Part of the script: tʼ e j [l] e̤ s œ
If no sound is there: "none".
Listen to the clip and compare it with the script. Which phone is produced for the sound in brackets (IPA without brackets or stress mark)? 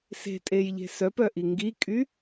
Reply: ʎ